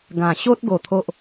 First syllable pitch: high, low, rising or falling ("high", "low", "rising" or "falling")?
low